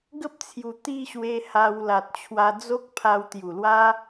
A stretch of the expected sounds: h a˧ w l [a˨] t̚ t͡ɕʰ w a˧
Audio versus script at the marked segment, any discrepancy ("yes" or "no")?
no